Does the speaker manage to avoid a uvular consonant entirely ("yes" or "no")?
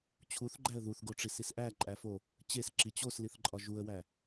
yes